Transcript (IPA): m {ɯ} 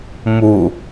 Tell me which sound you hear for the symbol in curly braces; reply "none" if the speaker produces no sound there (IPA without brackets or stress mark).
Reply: u